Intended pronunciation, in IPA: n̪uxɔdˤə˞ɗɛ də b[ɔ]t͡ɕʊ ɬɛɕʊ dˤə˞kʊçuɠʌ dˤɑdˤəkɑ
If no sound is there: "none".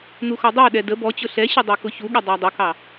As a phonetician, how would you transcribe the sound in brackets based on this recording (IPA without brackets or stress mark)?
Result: ɔ